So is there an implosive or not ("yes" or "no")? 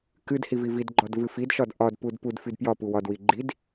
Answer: no